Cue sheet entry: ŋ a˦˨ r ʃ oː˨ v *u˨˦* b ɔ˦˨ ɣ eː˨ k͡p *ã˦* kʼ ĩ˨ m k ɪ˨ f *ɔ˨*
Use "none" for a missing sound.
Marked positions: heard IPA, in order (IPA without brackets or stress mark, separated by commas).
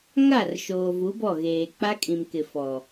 u˨˦, a˦, ɔ˨